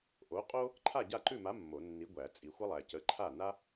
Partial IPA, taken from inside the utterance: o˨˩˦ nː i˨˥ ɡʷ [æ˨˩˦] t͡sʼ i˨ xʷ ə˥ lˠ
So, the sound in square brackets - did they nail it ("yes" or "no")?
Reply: yes